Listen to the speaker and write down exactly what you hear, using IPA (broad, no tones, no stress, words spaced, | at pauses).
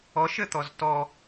ɔʃɘt̪ɔz tɔ